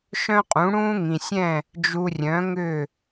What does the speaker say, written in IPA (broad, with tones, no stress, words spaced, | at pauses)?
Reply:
ʃœ̃˥qʼũ˩˥ ɽũː˥ŋĩ˩sʲɛ̃˥˩ | d͡ʒu˧rʲœ̃˩˥ŋʏ˥˩